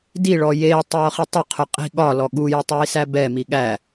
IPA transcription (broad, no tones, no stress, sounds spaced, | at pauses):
d i ɭ ɔ j eː tˤ j ɔ χ i tˤ ʊ qʰ ʊ qʼ i̤ ɠ ɒ l ɔ ɠ u j ɪ tˤ j i s æ b ɛ m i ɠ æ